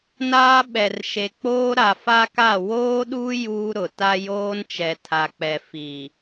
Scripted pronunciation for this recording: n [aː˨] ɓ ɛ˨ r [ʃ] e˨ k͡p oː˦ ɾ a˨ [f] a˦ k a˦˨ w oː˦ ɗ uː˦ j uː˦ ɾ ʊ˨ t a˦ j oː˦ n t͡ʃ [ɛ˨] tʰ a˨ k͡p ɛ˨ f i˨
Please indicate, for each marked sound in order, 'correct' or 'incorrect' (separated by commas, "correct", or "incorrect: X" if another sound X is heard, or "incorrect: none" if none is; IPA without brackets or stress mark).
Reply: incorrect: aː˦, correct, correct, correct